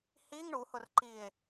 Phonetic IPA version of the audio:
h i ŋ ɳ u h ʊ r ǃ i e̯

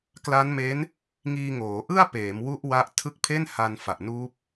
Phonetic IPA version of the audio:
k l a˦˥ n m e˦˥ n | ŋ iː˧ ŋ oː˩˦ ʔ ɯ˥˩ a̯ p eː˩˦ m w u˦˥ ʔ w a˦˥ ʔ tʰ ɯ˦˥ k̚ pʰ e˥˩ n h a˧ n f a˨˩ ʔ n uː˦˥ p̚

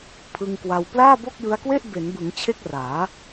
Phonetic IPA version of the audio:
pʰ ɯ˧ ŋ k w a˧ w p l aː˥˩ b o˥˩ k̚ j ɯ˦˥ a̯ k w e˥˩ ʔ b e˩˦ n b ɯ˩˦ ŋ t͡ɕʰ e˥˩ k̚ r aː˩˦

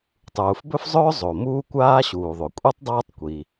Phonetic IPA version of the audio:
tˤ uː˩ f b ɵ˥ f zˤ ɵː˥ zˤ o˩ m uː˥ kʷ aː˥ ɕ uː˩ ðˤ o˩ kʷʼ ɛ˥ tˤ dˤ aː˥ tˤ kʷ i˩

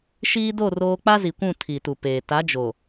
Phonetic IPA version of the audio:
ʃ iː˦ d o˦˨ r oː˦ k͡p a˦ z i˨ kʷ ũ˦˨ tʰ i˨ t u˨ p eː˨ t a˨˦ d͡ʒ o˨

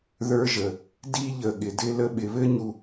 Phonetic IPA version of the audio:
ð ə˞˦ ʒ ə˨ | d i˦ ʎ ə˨ ɠ ɪ˨ d ɪ˦ l ə˦ ɓ ɪ˨ β ɘ˦ ɲ u˨

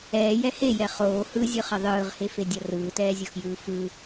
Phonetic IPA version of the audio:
ɛː j ɛ h e j ɛ χ oː h ɯ zʲ ɯ χ ʌ ðˤ ɯː ʁ h e f e dʲ ʌ r ɯː t ɛː zʲ o x j ɯː f ɯ

